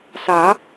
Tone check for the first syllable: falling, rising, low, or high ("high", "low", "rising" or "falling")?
rising